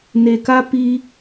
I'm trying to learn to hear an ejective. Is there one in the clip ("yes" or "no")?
no